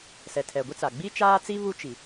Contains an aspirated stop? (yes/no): yes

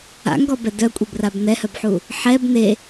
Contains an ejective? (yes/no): yes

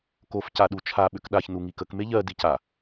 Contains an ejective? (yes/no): no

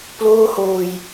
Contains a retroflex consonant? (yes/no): no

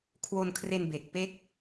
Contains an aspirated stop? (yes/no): yes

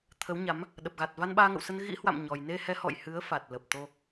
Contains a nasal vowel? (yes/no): no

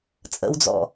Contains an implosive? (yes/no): no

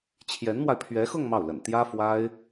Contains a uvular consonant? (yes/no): no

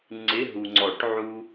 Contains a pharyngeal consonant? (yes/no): yes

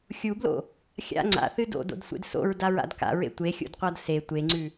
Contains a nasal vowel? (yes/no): no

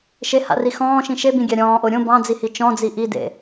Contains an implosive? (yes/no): no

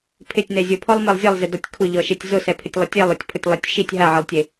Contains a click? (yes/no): no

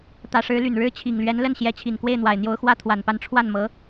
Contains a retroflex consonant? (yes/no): yes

